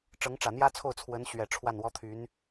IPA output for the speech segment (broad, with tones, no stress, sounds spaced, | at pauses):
ʈ͡ʂ ɤ˧˥ ŋ ʈ͡ʂ ä˨˩ n̪ j ä˥ t͡sʰ o˥˩ ʊ̯ t͡sʰ w ə˧˥ n ɕ ɥ ɛ˨˩ ʈ͡ʂʰ w a˥˩ n w ɔ˥ t̪ʰ y˧˥ n